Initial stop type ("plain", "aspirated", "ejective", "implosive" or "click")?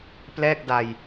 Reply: plain